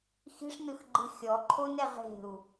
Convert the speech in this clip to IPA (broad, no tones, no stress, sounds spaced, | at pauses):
x i̤ ʂ n ɯ x ɡ͡ǃ ɯ xʲ ɔ ǃʰ o n ɛ ʁ e̤ u̯